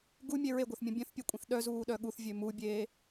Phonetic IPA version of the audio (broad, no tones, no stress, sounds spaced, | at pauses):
ɡ u mʲ e ɹ e ɡʷ œ θ mʲ ũ bʲ œ̃ θ pʲ e kʷʼ ĩ θ ɗ œ z uː ɗ œ ɠ u θ vʲ ø m u bʲ eː